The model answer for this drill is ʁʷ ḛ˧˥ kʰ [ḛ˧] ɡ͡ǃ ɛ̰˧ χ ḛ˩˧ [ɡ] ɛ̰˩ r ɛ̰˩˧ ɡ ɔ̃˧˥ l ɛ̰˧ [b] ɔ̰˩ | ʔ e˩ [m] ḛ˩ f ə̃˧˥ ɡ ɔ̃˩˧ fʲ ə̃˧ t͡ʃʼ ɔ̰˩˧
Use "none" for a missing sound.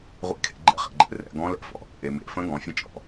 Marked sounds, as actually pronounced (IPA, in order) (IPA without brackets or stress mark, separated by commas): ḛ˧, ɡ͡ǃ, f, m